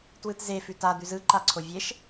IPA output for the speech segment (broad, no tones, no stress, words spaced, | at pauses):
twɯtzefʉ tad̪ʉz ɯ ǃaǀʰovʲeʃ